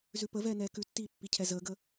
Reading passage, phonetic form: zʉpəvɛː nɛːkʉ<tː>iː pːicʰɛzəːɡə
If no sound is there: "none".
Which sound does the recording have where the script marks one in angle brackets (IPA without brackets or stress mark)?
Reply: tː